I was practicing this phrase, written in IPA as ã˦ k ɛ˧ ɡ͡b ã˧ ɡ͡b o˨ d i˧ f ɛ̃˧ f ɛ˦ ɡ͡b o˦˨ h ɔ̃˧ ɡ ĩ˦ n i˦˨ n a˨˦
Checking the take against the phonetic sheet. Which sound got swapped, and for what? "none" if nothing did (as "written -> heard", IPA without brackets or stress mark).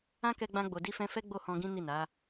none